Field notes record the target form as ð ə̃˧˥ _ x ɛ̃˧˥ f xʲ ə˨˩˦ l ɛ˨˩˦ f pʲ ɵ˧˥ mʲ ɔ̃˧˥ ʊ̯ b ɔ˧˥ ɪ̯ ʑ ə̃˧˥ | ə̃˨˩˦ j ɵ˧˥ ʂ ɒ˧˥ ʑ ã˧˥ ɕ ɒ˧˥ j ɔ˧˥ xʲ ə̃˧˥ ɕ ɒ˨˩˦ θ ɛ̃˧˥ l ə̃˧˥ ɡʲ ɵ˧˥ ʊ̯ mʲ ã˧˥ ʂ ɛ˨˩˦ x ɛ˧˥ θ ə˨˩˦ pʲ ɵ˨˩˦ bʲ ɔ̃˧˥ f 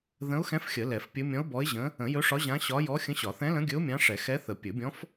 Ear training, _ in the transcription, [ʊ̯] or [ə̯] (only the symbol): ʊ̯